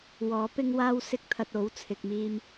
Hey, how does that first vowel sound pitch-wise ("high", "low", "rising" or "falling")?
rising